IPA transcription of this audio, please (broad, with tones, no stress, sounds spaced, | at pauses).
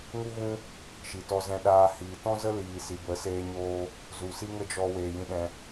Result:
ŋ u˦ ɣ ũ˦ | ʃ i˨ t ɔ˧ z ɛ̃˧ ɗ aː˧ h iː˨ t ɔ̃˦ z ə˦ l iː˨ s i˨ b ə˨˦ s eː˧ ɲ oː˦ | z u˨ s i˦ ŋ ə˦ d͡ʒ ɔ˧ w eː˨ j ĩ˧ ɗ ɛ̃˧